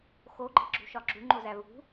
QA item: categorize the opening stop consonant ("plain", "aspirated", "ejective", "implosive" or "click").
click